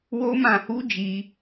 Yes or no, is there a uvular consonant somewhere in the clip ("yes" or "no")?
no